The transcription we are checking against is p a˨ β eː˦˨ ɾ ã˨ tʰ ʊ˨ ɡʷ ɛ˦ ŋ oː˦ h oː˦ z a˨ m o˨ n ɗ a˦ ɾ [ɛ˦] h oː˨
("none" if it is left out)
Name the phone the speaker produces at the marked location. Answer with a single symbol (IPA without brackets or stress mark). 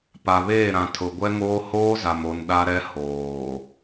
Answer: ɛ˦